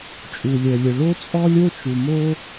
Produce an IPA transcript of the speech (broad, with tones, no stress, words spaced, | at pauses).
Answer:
t͡ʃʼu˩lʲœ˩lʲə˩ ɭo˥t͡sʼɔ˥lʲo˥t͡ʃu˩ mo˧